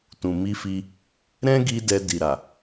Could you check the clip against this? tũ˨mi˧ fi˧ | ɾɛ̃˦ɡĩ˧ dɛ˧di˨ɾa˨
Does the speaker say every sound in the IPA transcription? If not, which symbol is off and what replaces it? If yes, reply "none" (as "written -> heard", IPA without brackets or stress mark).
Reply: ĩ˧ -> i˧